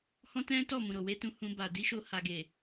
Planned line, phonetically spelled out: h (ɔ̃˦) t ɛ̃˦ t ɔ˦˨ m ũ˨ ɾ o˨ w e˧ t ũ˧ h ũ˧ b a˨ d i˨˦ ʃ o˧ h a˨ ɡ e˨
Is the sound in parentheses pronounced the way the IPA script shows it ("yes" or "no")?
yes